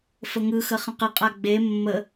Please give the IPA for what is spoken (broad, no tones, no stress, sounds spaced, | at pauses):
f ə ŋ ɯ x ə χ ə̃ q ə qʼ a ɡ͡b e mː ə